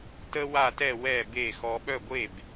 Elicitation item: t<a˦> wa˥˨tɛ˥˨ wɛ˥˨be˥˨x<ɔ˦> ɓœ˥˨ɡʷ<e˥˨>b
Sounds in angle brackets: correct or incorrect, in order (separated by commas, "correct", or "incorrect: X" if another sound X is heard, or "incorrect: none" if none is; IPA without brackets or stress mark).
incorrect: ə˦, correct, correct